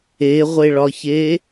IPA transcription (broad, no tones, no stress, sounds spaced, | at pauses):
e ʁʷ e ɭ ɒ ç e